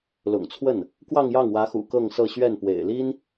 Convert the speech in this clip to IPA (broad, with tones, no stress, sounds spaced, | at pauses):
l ʊ̰˨˩ ŋ t͡sʰ w ə˥˩ n | k w ɑ˥˧ ŋ j ɑ˥˩ ŋ w ä˧˥ x ṵ˨˩ k ɤ˥˧ ŋ s ɤ˥˧ ɕ ɥ ɛ˥˩ n p w ḛ˨˩ ɪ̯ l i˥ n